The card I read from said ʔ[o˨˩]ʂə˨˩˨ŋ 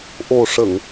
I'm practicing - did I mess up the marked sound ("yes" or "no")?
no